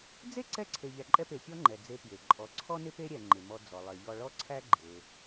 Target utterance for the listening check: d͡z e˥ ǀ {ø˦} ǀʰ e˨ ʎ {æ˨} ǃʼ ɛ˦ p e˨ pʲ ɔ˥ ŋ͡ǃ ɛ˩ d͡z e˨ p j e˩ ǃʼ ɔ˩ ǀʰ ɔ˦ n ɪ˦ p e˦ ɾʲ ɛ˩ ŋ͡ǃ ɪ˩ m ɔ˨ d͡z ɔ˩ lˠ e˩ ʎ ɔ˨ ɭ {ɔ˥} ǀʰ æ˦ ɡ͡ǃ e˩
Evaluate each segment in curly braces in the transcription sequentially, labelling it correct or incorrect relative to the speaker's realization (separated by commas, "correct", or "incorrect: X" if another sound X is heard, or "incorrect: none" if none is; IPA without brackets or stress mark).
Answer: incorrect: ɛ˦, correct, incorrect: ɔ˦